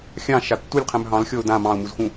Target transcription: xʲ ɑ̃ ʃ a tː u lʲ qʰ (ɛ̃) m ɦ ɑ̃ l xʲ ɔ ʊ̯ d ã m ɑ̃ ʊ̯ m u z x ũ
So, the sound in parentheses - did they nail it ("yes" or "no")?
yes